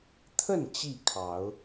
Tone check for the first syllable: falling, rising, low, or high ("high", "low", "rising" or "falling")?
falling